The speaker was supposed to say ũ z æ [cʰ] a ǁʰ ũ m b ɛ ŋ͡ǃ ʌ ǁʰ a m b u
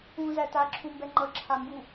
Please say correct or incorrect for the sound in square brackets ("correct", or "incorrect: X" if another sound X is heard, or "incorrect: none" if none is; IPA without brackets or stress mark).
incorrect: t